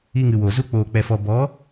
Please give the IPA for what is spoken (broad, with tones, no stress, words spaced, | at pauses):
i˧ŋɨ˨wo˨ zu˧ k͡poː˨k͡pɛ˨fɔ˨ bɔ˨˦